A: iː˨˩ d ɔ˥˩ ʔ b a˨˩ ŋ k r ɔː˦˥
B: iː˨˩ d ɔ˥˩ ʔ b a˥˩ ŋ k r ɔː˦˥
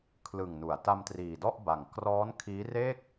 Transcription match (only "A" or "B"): A